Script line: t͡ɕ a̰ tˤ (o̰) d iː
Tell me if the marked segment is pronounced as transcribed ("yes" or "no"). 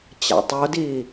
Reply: no